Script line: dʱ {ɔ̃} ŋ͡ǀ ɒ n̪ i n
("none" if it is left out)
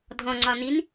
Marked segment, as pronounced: ɔ̃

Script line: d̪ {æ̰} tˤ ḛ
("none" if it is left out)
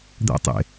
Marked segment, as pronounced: æ̰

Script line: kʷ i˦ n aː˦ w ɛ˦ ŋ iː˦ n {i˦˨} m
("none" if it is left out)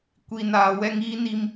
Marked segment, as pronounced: i˦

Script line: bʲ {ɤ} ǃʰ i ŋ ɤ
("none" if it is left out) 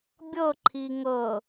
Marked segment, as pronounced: ɤ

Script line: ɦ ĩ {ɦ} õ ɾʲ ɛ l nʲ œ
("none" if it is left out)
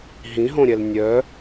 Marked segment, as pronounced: ɦ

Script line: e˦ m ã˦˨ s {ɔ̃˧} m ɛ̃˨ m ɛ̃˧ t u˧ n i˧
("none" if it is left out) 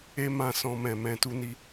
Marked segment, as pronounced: ɔ̃˧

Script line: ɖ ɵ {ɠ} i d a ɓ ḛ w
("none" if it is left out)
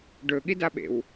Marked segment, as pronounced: ɠ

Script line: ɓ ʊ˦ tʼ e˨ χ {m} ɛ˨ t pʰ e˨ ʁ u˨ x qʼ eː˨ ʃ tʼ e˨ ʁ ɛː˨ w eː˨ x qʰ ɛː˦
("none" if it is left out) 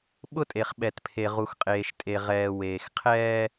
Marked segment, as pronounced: ɓ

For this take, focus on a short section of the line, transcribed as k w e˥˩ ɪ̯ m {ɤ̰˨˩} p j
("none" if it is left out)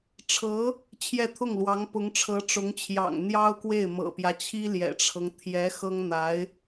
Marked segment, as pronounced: ɤ̰˨˩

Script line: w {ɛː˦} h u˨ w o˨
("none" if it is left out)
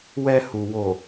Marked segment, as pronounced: ɛ˦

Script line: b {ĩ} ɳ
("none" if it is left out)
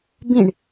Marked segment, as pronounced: ĩ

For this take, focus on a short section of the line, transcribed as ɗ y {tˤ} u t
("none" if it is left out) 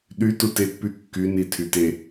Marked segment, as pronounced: t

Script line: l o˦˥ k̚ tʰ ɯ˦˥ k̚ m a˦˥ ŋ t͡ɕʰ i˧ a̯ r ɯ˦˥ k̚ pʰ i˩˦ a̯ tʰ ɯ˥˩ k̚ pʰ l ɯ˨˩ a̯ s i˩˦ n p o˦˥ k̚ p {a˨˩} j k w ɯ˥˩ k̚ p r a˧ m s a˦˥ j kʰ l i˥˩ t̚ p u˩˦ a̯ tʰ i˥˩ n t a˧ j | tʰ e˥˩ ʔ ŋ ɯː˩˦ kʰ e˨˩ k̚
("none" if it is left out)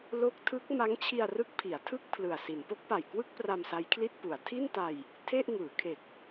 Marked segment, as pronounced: a˨˩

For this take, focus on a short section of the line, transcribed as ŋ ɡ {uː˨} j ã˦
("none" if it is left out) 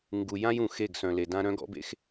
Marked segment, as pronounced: u˨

